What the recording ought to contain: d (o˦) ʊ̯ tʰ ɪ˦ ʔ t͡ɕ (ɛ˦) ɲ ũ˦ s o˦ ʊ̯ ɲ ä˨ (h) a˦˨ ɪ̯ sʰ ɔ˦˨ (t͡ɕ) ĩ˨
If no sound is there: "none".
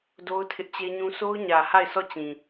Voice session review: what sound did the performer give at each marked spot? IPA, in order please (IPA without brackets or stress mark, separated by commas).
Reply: o˦, e˦, h, t͡ɕ